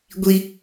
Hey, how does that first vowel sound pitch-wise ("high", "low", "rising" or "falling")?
high